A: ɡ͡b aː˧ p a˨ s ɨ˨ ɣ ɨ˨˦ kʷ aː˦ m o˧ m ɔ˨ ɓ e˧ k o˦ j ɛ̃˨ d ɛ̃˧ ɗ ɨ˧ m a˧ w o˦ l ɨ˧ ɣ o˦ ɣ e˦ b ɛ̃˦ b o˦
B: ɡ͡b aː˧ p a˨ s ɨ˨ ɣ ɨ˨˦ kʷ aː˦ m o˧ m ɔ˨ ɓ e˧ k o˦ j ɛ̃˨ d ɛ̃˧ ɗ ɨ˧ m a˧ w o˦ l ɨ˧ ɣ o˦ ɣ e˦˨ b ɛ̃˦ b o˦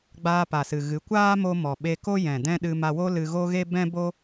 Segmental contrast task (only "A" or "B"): A